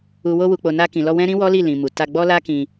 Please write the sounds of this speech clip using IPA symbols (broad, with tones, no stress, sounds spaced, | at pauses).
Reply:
u˨ w o˧ w u˨ k͡p o˨ n a˧ k ĩ˨ l ɔ˧ w ɛ̃˦ ɾ ĩ˦ w ɔ˦ l i˦˨ l ĩ˨ m u˨ t a˧ ɡ͡b ɔ˦ l a˦ k ĩ˧